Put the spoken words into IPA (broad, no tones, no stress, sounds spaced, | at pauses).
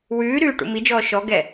w ʉː ɾ ʉː ʈ ṵ m i d͡ʒ ɔː ʃ ɔ ɡ ɛ